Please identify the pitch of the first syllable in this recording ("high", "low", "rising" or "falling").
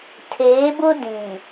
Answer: rising